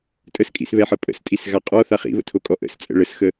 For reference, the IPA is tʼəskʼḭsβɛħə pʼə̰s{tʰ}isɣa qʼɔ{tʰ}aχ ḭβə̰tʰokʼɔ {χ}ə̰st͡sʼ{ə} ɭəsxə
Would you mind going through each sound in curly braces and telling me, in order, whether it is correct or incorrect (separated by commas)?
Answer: incorrect, incorrect, incorrect, incorrect